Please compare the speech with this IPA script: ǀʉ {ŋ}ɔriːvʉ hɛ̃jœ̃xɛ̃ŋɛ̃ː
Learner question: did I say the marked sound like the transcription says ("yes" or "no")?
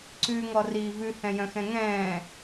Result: yes